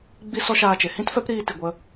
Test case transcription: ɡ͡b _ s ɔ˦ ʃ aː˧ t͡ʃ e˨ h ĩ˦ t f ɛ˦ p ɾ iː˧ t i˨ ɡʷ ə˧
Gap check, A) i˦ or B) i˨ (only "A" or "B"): A